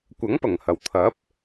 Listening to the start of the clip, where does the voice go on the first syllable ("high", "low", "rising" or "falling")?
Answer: rising